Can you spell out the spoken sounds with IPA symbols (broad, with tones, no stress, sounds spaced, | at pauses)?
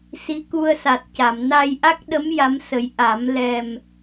s i˧˥ k u˧ ə̯ s a˨˩ t̚ c a˨˩˨ m n a˧ j ʔ a˦˥ k̚ ɗ ə˧˥ m j a˧˥ m s ə˨˩˦ j ʔ a˨˩˦ m l ɛ˨˩ m